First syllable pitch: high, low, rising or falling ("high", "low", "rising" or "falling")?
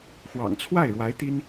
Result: low